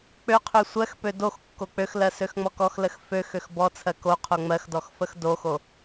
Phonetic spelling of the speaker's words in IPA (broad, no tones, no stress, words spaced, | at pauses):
k͡pøqʰø sʷɜxpø dox kːok͡pøxlɜ søxŋ͡mɔkɔxləx føxøx bɔt͡sʰɜ ko qʰoŋ͡mɜxdɔx fəxdoxo